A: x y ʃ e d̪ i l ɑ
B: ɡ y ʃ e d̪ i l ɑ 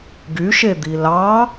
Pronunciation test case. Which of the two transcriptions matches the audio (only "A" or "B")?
B